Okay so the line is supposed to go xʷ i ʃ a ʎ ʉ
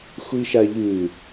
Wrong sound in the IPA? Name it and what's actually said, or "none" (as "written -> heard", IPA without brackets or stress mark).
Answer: none